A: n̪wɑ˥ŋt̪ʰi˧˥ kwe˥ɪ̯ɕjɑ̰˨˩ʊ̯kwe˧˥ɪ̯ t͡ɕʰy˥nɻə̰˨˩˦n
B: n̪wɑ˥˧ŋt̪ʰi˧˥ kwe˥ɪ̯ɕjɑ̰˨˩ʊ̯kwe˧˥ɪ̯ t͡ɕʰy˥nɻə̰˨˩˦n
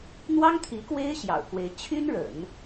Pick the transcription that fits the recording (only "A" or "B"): A